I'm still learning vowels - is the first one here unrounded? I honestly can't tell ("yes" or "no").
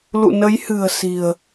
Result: no